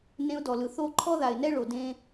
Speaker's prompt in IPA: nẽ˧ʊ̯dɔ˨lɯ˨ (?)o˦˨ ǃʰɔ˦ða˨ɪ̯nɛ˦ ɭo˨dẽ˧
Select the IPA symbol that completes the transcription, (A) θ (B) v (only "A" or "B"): A